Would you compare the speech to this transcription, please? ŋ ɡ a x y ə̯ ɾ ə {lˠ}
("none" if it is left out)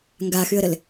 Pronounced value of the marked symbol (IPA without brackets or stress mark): l